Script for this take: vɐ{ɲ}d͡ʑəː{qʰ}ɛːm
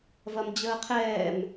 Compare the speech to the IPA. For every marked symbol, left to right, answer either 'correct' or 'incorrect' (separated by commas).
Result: incorrect, correct